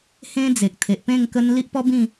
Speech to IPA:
h ẽ˦ d͡z e˨ k̚ t̪ʰ e˨ ʔ p ẽ˥˧ ŋ k ə˧ n l i˦ ʔ p ɔ˦ b ĩ˥˧

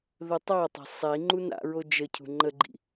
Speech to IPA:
ð ə tˤ a tˤ ɑ̤ sˤ i ŋ͡ǃ u n a̰ ɹ o d͡ʒ ə cʰ ṳ ŋ͡ǃ ə ɡ͡ǃ ḭ

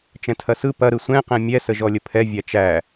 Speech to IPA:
t͡ʃ ɛ̃ tʰ ɐ s ɯ p ɐ ɾ ɯ sʷ ɛ̃ q ɛ̃ mʲ ɛ s ə ʒ ɔ lʲ ə pʰ ɛ vʲ æ t͡ʃ æ

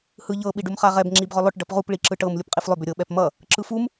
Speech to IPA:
h ɯ ʎ ɤ ɓ i ɖ u m χ a ʁ ɛ b ŋ͡ǁ i b ʁ ʏ lˠ ʏ ʈ ɖ ʌ p ʁ u p ɭ i ǁ ɯ ʈ ɤ m lʲ u p qʼ i f lˠ ʏ b ʏ ɾʲ ɤ ɓ ɛ p m ʌ | ǁ ɯ f u m

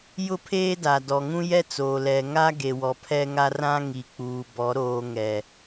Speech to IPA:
j ʊ˦ pʰ eː˦ d a˨ d ɔ˨ ŋ ũ˦ j ɛ˦ t͡s oː˨ l ɛ˨ ŋ a˦ ɡ e˨ w ɔ˨ pʰ ɛ˦ ŋ a˦ r ã˦ ŋ i˨ k͡p uː˨ b ɔ˨˦ ɾ oː˨ ŋ ɛ˨

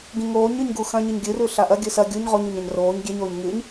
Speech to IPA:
ɡ ĩ ŋ oː ɲ ʉ ɲ ɡ u x ɐ̃ ɲ ɨ ɲ ɡʲ ɨ r ʉ ɬ a ʔ ɐ ɡʲ ɨ s ɐ ɡʲ u ɲ ʁ o ɲ u ɲ ɐ̃ ɲ r oː ɲ ɡʲ e ɲ oː ɲ ŋ ɨ ɲ

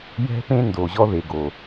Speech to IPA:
j ɛ̤˧ p ẽ˧ n d o˨ ʑ ɔ˦ ð e˨ ɡ o˨

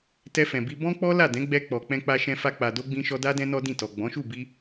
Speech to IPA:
t ɛ˧ f ɛ̃˨ b i˧ b ɔ̃˦ k͡p ɔ˦ l a˦˨ d ɛ̃˨˦ ɡ͡b ɛ˧ k͡p ɔ˨ k͡p ɛ̃˧ k͡p a˧ ʃ ɛ̃˧ f a˧ k͡p a˨ d o˧ ɡ͡b ĩ˧ ʃ ɔ˧ d a˦ d ɛ̃˦ n ɔ˦ d ĩ˦˨ t ɔ˨ ɡ͡b ɔ̃˨˦ ʃ u˦˨ b i˧

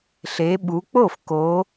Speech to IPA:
ɬ e˩˧ ɓ u˩˧ k͡p o˥˩ f k o˩˧

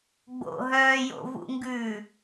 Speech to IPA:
ɡ͡b o̰ ɦ œː j o̰ v ṵ ŋ ɡ ʉː

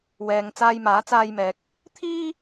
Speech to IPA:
w ɛː˧ ŋ t͡s aː˧ j m aː˨˥ t͡s aː˧ j m ɛː˨ k̚ | t̪ʰ iː˥

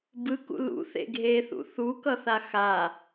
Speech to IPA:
b ɯ k ṵ l ṵ θ ḛ ɡʱ e θ ṵ θ u k ʌ θ a x a

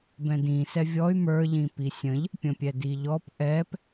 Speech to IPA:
b ɛ̃ d ĩ s ɛ vʲ ɔ y̯ m ə˞ ʎ ĩ p i sʲ ə̃ ʎ | pʲ ə̃ pʲ ɛ d i ʎ ɔ p ʔ ɛ p

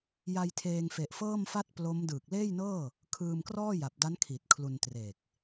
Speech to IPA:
j a˧ j tʰ eː˧ ŋ f e˨˩ ʔ f ɤː˥˩ m f a˥˩ t̚ p l o˦˥ m d ɯː˨˩ k̚ l eː˥˩ j n ɤː˥˩ | kʰ ɯː˧ m k r ɔː˥˩ j a˨˩ p̚ d a˦˥ n kʰ i˨˩ t̚ kʰ l u˧ n t r e˨˩ k̚

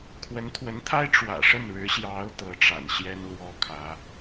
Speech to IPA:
kʰ w ə˧˥ n t̪ʰ w ə˧˥ n t̪ʰ a˥ ɪ̯ ʈ͡ʂ w ä̰˨˩ ʂ ə˥˩ n ɻ ɻ̩˧˥ ɕ j ɑ˧˥ ʊ̯ t̪ ɤ˧˥ ʈ͡ʂ a̰˨˩ n ɕ j ɛ˥ n l w ɔ˥ kʰ ä˧˥

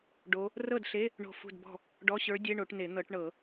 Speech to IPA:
ɖ o˧˥ | r ɤ˥˩ d ɬ e˧˥˧ | ɳ o̤˥˩ f ṳ˥˩ d b ɔ̤˥˩ | ɖ ɔ˧˥˧ ɕ ə˞˧˥ dʲ e˧˥˧ ɳ o˨˩˦ ʈ n e˨˩˦ n̪ ɤ˨˩˦ ʈ ɳ ɤ˨˩˦

